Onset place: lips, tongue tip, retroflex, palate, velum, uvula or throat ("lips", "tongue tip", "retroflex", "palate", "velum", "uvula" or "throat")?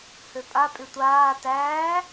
throat